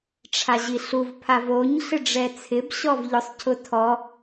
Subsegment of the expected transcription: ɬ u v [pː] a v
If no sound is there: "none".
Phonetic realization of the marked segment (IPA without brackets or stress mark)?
pʰ